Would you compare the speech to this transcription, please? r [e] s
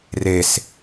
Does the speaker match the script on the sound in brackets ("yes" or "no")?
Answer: yes